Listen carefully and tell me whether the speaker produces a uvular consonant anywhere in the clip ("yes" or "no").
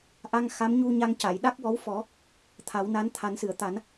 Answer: no